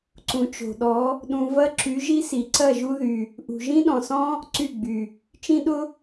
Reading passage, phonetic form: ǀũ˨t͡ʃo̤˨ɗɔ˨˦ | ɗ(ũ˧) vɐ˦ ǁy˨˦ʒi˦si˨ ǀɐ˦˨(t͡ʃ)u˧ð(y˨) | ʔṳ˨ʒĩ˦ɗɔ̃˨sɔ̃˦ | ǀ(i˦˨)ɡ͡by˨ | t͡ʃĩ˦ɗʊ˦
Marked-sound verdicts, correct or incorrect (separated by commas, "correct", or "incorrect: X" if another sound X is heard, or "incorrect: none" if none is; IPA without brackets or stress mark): correct, incorrect: ʒ, correct, incorrect: y˦˨